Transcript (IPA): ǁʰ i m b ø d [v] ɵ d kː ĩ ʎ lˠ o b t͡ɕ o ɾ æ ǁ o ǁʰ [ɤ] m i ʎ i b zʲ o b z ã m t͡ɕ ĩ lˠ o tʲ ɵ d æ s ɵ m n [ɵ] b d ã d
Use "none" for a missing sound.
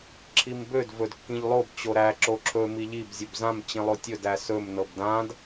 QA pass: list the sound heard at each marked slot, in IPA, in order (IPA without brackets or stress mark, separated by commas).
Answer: v, ɵ, ɤ